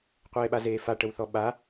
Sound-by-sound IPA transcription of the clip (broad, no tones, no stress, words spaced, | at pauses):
qʷeːɓazeːfa ʈəwθɔɓa